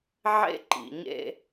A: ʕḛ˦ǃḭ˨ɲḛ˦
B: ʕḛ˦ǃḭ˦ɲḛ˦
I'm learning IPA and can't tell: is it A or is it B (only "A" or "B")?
A